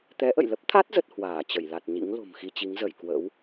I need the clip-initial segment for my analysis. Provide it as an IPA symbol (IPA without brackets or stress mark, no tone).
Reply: t̪